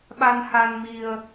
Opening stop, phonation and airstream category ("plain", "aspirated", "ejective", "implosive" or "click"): implosive